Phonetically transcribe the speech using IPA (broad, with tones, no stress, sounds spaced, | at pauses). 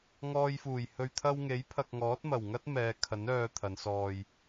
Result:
ŋ ɔː˧ j f uː˨˩ j h ɵ˨ ɥ t̪ʰ ɐ˧ w ŋ e˨˥ j pʰ ɐ˨ k̚ ŋ ɔː˨˥ t̚ m ɐ˨˩ w ŋ ɐ˥ t̚ m ɛː˨˧ kʰ ɐ˨˥ n œː˧ t̪ʰ ɐ˨˧ n s ɔː˧ j